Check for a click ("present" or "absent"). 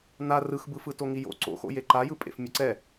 present